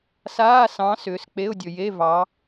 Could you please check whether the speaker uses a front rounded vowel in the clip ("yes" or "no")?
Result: yes